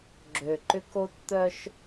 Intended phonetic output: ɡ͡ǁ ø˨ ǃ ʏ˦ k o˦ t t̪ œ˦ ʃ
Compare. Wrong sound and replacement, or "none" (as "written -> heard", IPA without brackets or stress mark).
none